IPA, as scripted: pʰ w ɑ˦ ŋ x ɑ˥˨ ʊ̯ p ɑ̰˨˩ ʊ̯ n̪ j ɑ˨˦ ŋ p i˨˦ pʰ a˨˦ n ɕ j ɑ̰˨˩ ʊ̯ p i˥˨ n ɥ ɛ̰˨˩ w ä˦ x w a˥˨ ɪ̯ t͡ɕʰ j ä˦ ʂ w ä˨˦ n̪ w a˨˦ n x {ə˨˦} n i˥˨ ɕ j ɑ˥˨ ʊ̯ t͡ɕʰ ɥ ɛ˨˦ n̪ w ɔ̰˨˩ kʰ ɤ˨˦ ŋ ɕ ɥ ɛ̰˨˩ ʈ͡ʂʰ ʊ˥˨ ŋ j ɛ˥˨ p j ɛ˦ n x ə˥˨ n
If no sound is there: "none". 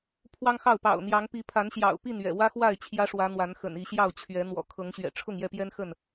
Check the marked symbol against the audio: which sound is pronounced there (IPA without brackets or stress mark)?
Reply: ə̰˨˩